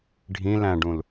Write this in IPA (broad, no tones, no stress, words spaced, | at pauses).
ɖʱĩ læ̃ɖũl